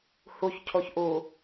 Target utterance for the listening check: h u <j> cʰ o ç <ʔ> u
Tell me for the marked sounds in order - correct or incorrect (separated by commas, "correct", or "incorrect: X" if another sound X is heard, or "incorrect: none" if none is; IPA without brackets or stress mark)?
incorrect: ç, correct